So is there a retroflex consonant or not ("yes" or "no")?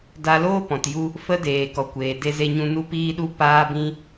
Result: no